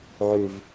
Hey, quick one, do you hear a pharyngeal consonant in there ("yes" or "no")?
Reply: yes